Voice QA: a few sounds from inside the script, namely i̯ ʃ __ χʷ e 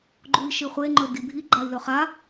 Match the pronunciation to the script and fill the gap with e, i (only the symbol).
i